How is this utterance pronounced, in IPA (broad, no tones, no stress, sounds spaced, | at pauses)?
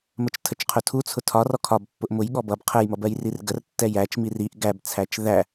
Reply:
m ə t͡ʃ tʰ ə t͡ʃ qʰ ʊ tʰ u t͡sʰ ʊ tʰ ɒ r ɔ kʰ ɒ b pː ʊ ʔ m ʊ j ɠ ɔ b ʌ b qʰ ə j m ʌ b ɜ j r i r ɡ ə r tː ɛ j æ t͡ʃ m i r i ʔ ɡ æ b t͡sʰ æ t͡ʃ ð æ